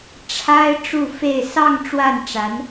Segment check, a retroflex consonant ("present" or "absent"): present